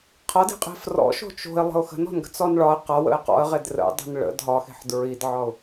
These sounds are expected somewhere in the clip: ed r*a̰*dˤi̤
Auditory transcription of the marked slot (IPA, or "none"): ə̰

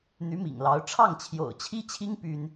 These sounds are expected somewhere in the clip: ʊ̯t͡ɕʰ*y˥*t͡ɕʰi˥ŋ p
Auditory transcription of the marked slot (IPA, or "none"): i˥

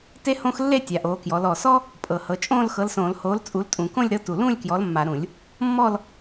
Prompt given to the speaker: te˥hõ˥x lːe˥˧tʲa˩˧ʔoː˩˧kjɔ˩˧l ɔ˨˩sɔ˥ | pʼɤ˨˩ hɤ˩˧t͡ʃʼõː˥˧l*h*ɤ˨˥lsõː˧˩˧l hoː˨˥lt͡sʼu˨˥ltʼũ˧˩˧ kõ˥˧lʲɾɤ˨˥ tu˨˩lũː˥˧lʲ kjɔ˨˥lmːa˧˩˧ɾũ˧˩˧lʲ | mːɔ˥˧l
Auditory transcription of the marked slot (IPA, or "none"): x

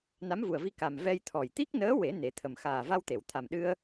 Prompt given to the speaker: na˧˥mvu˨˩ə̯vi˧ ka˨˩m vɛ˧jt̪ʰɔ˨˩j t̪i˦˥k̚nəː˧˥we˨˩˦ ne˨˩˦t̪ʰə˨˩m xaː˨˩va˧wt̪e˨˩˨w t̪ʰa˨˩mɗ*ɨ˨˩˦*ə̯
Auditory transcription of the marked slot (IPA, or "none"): ɨ˧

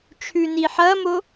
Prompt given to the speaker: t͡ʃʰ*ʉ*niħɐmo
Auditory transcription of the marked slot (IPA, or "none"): ʉ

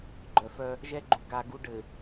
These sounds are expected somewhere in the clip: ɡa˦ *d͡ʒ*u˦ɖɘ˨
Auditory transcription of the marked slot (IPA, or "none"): ɡ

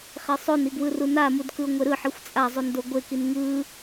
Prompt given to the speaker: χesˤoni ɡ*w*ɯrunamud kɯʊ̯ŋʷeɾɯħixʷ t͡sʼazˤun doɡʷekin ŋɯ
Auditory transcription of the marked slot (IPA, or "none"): w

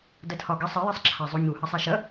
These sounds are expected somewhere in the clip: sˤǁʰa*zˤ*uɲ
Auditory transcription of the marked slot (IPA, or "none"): zˤ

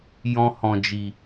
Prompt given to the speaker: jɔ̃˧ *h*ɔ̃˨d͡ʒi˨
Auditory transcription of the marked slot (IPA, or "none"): h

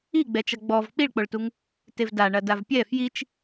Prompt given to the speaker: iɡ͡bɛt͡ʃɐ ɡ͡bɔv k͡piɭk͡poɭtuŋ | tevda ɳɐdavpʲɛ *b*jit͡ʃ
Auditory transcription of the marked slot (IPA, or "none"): f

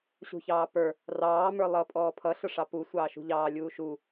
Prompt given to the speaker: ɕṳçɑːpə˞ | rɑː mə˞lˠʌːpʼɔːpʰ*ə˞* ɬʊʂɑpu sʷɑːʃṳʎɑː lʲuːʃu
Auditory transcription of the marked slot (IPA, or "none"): ʌ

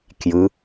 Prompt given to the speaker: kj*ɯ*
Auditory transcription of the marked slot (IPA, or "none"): ɯ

